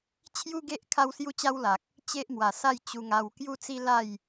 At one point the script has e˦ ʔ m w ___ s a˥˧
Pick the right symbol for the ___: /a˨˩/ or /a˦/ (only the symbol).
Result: a˨˩